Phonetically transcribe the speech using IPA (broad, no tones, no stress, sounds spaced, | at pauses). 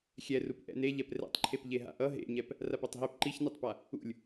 xʲ ɛ r u p ʔ ɛ̰ n e ʎ ɛ p r ɛ̰ tˤ ǃʰ e p ʎ e ɦ a̰ ʔ ʌ ɦ ḛ ɲ ɛ p | r a p a tˤ ɦ e p ǃ i ç n i tˤ p a | ṵ lʲ